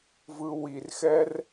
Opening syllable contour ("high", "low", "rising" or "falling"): high